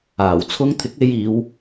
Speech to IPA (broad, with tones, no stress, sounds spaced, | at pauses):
aː˨˩ w t͡sʰ ʊ˧ ŋ t̪ʰ ɪ˨˥ k̚ e˧ j iː˨˧ w